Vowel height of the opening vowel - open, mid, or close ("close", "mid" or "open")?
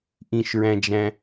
close